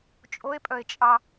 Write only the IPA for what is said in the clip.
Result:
t͡ʃʼoe̯pʼœe̯t͡ʃʼɑ

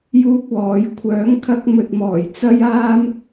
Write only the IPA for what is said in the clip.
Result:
juː˥k̚wɔː˨˥j kʷʰœː˨˥ŋ kʰɐ˥k̚ mɵ˧t̚mɔː˨˩j t͡sɐ˥jaː˥m

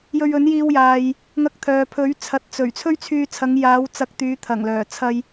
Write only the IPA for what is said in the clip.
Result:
jɵ˧ɥɵ˨˥njiː˧wjaː˨j | ŋɐ˧k̚ t̪ʰœː˨pʰɵ˨˥ɥ t͡sʰɐ˨t̚t͡sɵ˨˩ɥ t͡sʰɵ˥ɥt͡sʰyː˧t͡sʰɐ˨˧ŋ jaː˨˧wt͡sɐ˨˥k̚ t̪yː˨˧t̪ʰɐ˨˩ŋlœː˨˩ t͡sʰɐ˧j

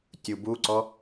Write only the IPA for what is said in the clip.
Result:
tʲubuǀɔ

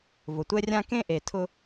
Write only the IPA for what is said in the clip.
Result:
vʊ˩tʷɛ˥rʲã˥ kẽ˥ʔe˩ tʰʊ˥

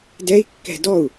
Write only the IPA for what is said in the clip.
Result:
dɛi̯kːɛ̤ dɔu̯

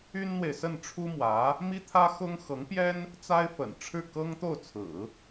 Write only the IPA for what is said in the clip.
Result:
y˥nn̪we˨ɪ̯sə˥˩n ʈ͡ʂʰu˥mwä˧˥ | mi˥t̪ʰä˥ xʊ˥ŋ xɤ˧˥ŋpjɛ˥n | t͡sa˥ɪ̯fə̰˨˩nʈ͡ʂʰɻ̩˥˩ kɤ˥ŋt̪o˥˩ʊ̯t͡sʰɹ̩˨˩˦

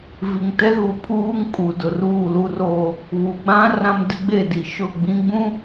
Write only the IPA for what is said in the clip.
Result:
vi˨ŋtɛ˦ɣu˨ pʰuː˦ŋkʼu˨ dʊ˨ruː˦˨ lu˦roː˦ | βu˨ɡ͡bã˦ rã˦mdɪ˦ ɡ͡be˦˨di˨ʃʊ˦˨ ɡ͡bĩ˦ɡ͡bũ˦

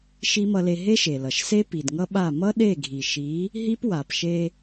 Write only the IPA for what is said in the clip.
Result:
ʃi˦mʌ˧le˧ ɦe˦ʃe˨lʌ˨ʃse˦ pi˨dŋʌ˦ɓa˦˨ mʌ˦ɗe˦˨ɡʱi˨ʃi˨˦ | ɦi˦pwa˨pʃe˧

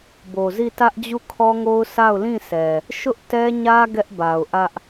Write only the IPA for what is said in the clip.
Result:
bo˨zi˦˨ tä˦ʔ d͡ʑu˦˨kʰɔ˦ŋo˦ʊ̯ sʰa˦˨ʊ̯lĩ˦˨sɛ˨ | ʃʊ˦ʔtɛ˦ɲä˦ ɡɛ˦ʔba˨ʊ̯ ʔä˦ʔ

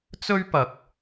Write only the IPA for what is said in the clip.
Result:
t͡sɵ˥ɥpɐ˧k̚

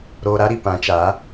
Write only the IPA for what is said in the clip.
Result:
ɾoː˧ɾa˦ɾi˨ pã˨˦t͡ʃa˨˦

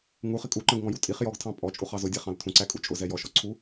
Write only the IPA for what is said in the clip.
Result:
ŋuχɪ kʼuǃə̃ɡŋɔ̃ju tʼiχ jɔɡtʰɑ̃ pʼɔt͡ʃʼuχɑ zʊdʲæχɑ̃l tʰũǀækʼu t͡ʃʼʊzɛ jɔʃɔǀʰu

